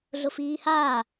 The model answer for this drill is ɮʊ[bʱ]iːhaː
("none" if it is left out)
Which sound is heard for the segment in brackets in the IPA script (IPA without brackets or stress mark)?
f